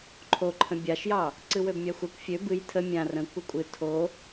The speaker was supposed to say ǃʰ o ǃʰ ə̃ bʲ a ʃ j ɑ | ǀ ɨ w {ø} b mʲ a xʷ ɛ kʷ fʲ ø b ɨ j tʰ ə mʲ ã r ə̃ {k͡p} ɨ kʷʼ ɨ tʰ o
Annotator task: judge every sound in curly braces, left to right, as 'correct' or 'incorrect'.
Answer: correct, incorrect: kʷ

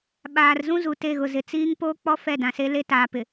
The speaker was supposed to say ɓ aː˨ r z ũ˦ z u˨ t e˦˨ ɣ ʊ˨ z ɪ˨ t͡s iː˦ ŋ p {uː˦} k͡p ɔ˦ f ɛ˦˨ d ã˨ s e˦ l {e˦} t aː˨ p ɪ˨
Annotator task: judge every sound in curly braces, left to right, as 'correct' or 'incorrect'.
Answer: incorrect: oː˦, correct

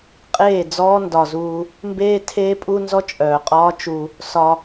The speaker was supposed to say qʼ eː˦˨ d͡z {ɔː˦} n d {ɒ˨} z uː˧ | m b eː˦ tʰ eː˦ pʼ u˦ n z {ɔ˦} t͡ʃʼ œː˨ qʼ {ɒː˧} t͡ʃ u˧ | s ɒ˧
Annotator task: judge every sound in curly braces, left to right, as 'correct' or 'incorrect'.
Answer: correct, correct, correct, incorrect: ɒː˦

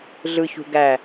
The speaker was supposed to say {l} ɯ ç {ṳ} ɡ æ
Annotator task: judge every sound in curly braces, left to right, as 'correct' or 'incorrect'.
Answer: incorrect: ɮ, correct

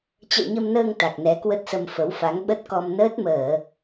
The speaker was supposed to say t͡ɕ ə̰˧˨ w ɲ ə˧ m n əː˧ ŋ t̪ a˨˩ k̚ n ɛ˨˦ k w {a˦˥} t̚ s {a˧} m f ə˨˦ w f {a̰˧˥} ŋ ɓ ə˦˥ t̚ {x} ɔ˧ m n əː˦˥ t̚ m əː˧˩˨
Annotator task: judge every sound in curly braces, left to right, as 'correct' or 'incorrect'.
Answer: incorrect: ə˦˥, incorrect: ə˧, incorrect: a˨˦, incorrect: k

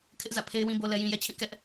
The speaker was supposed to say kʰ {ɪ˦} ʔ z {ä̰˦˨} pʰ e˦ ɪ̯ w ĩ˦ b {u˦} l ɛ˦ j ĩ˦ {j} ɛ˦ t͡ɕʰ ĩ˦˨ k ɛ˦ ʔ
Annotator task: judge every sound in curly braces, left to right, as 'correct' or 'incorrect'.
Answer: correct, correct, incorrect: o˦, correct

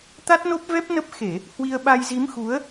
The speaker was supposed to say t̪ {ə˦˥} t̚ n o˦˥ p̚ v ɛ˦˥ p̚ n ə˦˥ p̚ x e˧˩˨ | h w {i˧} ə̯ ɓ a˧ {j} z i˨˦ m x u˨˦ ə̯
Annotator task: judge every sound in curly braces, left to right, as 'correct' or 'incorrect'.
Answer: incorrect: a˦˥, correct, correct

